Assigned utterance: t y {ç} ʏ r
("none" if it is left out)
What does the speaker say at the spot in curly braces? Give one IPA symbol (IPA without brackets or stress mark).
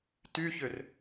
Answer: ç